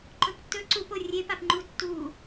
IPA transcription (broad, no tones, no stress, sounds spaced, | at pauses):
ǃ ɵ p tː ɵ ǀ u p o rʲ e p a p ŋ͡ǃ u tː u